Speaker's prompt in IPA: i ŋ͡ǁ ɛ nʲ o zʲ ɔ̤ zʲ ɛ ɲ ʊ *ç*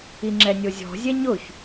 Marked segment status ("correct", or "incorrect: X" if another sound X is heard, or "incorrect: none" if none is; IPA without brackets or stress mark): correct